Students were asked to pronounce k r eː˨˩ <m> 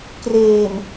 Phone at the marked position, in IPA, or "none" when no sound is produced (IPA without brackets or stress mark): m